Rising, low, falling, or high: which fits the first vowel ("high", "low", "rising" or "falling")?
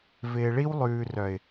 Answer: low